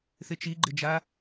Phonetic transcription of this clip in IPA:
θɪt͡ʃiɡ͡ǃɪd͡ʒa

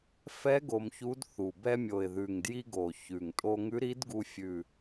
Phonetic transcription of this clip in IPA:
fɛ˧˥ ɡo˧mçu˧˥dθu˨˩ bɛ˧mʲo˨˩ɪ̯ðʉ˨˩ŋdji˧ ɡo˨˩ çʉ˨˩ŋ tʼo˧ŋʉ˧˥ɾi˧˥dɡu˧ fʲʉ˨˩

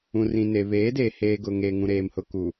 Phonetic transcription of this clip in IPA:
ũ˨rĩ˨ne˨ βeː˨˦deː˨ heː˨ ɡʊ˨ŋeː˨ ŋũ˨ɾeː˨mhʊ˨ku˨

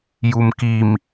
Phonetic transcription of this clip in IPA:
jumkim

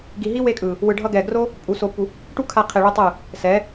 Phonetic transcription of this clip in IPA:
ɡi˨ɦi˦we˧kʼɯ˨ | wɯ˨ɖʱʌ˧ɡɛ˨ɡro˦ | pʼu˨ so˧pːu˧ | ʈu˦kʰa˧qʰe˨ ɭɯ˦tˤɯ˦˨ | sɛ˨˦

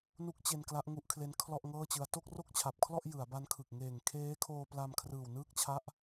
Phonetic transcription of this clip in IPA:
nu˦˥k̚t͡ɕe˧n kla˦˥ʔŋu˦˥ʔkʰle˦˥n kʰlɔ˥˩ʔ ŋɤː˥˩t͡ɕɯ˧a̯ to˥˩k̚ro˥˩k̚t͡ɕʰa˨˩p̚kʰlɔ˥˩ʔ jɯ˩˦a̯ba˦˥nkʰɯ˨˩k̚ ŋeː˨˩ŋkʰeː˦˥kʰoː˧ pla˧mkʰrɯː˨˩w nɯː˥˩k̚t͡ɕʰa˦˥ʔ

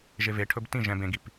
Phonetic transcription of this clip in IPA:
ʒeveʈʰɵb tĩ ʒɛ̃b ẽɡip

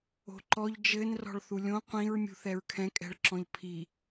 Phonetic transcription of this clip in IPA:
o̤ǃɔʎ d͡ʒɘn rɔ̤ɭθulʲõ qʷĩɹ mʲṳθɛɹkʰɛ̃ kʼɛ̤ɭǁɔ̃ʎpʰi

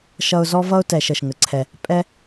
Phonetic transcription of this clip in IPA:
ʃʌ˧ʊ̯zɔ˦vʌ˦ʊ̯ tɛ˨ʃ ə˨ʃŋə˨˦ǀʰɛ˧ | pʼɛ˦

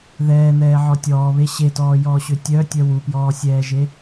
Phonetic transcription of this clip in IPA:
ðɛːn̪ɛːʕɔ tʲɔːβe ɕetɔːjɔːɕø tʲœtʲœ wupjɔːsʲɛːʒe

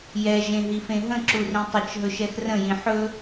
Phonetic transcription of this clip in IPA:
jɛʒẽɦifẽ ɦə̃ǁurĩ tˤət͡ʃɦɵʃɛx rə̃jĩ ħɵ

